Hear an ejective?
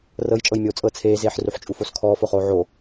yes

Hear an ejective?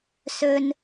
no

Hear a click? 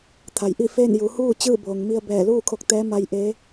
no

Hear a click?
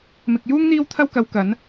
no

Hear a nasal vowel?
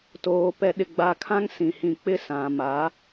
yes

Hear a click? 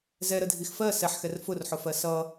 no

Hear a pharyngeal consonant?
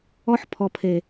yes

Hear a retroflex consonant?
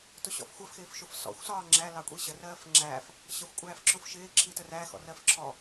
no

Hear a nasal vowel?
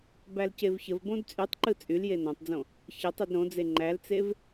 yes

